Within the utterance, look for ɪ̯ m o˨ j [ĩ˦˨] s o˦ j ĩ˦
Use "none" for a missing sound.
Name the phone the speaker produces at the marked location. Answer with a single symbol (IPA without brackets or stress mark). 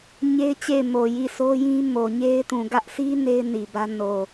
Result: i˦˨